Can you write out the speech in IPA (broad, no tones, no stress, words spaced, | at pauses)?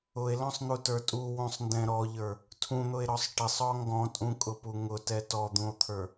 ʊe̯lɔ̃sˤn̪utə˞ tʼuwũsˤndɛ̃ ɾɔʎə˞ | tʰũn̪ʊe̯ɾɔsˤ ʈɪsˤɔ ŋɡɔ̃tʼũkʼʊpu ŋʊtɛ tɔd̪ũo̯t̪ʰə˞